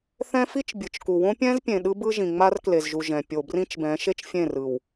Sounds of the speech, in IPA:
θ ɛ̃˦ f i˦ t͡ʃ bʲ ɯ˨ t͡ʃ k u˨ w õ˦ pʲ ɛ̃˦ z pʲ ẽ˨ ɗ ɯ˦ b ɯ˦ ʒ ĩ˨ ŋ͡m a˦ r k l e˨ z ʒ u˨ ʒ ɛ̃˨ pʲ o˨ b r ĩ˦ t͡ʃ b ɛ̃˨˦ ʃ e˦ t͡ʃ fʲ ẽ˦˨ r ɯ˨ w

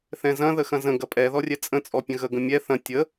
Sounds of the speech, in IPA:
θ ɛ̃ z ɐ̃ ð ə x ɐ̃ z ə̃ ɡ ɐ pʼ ɛ ð ɔ rʲ ɛ t͡sʼ ə̃ t͡sʼ ɔ pʲ ə̃ ɣ ə ɡ ə̃ mʲ ɛ θ ɐ̃ tʲ ə

